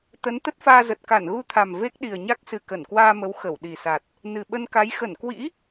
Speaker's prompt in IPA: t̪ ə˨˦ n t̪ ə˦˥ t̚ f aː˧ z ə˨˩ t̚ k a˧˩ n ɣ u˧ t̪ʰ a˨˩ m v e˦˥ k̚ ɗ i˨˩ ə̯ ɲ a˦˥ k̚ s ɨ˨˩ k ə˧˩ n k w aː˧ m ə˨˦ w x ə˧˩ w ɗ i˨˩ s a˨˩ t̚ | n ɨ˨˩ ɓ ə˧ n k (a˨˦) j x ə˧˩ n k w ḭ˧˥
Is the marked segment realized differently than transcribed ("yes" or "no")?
no